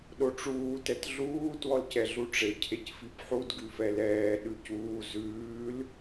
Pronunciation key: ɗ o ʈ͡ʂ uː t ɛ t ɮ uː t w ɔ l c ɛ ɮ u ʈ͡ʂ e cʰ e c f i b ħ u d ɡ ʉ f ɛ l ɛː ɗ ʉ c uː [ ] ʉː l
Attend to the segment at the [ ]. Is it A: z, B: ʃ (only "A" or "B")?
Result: A